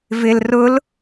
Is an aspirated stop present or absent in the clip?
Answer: absent